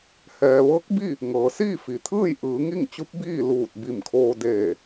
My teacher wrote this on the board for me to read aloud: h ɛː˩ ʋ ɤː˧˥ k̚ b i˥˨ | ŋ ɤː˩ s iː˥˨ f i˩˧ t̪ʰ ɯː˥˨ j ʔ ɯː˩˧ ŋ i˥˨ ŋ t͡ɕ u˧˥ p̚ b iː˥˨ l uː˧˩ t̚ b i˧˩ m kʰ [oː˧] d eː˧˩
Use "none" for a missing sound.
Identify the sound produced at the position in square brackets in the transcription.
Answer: oː˧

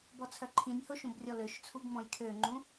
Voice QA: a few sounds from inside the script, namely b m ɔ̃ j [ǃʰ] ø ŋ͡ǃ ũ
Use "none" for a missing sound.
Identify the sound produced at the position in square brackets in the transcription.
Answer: kʰ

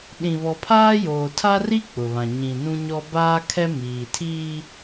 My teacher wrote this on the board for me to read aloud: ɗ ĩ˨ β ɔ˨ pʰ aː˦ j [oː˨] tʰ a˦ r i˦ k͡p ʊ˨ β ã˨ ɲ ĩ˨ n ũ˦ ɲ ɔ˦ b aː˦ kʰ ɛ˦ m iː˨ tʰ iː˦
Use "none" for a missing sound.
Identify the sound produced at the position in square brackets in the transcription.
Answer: oː˨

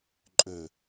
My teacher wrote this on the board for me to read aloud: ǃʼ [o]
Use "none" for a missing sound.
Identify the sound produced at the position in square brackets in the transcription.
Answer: ɵ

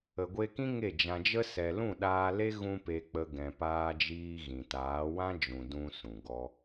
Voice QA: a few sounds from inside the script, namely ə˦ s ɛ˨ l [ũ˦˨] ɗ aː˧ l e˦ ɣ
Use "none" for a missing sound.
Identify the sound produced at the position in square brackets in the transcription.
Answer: ũ˦˨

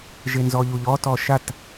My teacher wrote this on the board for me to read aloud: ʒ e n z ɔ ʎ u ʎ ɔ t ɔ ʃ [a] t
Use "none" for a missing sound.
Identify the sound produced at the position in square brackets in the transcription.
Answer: a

